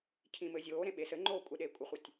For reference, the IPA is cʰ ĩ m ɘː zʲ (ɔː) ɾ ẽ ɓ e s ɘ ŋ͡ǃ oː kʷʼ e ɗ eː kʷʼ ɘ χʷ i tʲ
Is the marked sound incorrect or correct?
incorrect